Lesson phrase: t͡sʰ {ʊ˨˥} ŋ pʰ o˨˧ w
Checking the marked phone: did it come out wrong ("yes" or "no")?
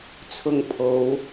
yes